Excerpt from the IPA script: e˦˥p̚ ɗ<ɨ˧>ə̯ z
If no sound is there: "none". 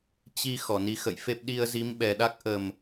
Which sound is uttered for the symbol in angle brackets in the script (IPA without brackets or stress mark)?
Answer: i˧